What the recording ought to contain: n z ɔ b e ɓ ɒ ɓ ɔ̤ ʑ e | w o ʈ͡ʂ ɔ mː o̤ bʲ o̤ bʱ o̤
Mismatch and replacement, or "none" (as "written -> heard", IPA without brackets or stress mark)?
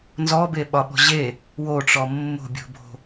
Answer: none